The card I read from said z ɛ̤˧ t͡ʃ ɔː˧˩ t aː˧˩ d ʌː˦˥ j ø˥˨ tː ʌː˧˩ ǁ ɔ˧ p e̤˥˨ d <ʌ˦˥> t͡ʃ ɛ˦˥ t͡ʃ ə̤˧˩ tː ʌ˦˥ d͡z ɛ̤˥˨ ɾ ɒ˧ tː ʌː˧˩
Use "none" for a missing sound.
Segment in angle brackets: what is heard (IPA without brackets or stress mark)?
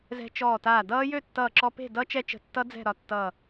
ʌ˦˥